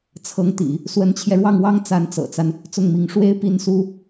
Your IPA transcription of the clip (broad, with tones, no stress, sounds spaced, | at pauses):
t͡sʰ ɤ˧˥ ŋ t̪ ḭ˨˩˦ | s w ə˧˥ n t͡ɕʰ j ɛ˧ ɻ w ɑ˥˩ ŋ w ɑ˥ ŋ t͡s a˧˥ n t͡s ɤ̰˨˩ t͡s a˦ n | t͡s ʊ˥˩ ŋ m i˧˥ ŋ ʂ w e˥˧ ɪ̯ p i˥˩ n s u˥